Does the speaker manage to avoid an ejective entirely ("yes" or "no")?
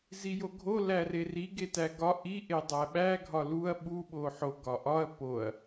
yes